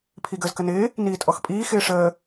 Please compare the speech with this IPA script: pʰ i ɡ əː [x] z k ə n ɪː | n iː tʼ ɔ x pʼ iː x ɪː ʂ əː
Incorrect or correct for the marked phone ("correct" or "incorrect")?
incorrect